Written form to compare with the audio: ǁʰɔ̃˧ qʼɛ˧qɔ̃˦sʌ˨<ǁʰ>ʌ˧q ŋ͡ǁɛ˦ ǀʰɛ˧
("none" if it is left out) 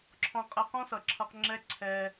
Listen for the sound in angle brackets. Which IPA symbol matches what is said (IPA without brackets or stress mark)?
ǁʰ